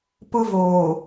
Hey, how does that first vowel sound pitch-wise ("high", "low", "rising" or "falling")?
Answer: high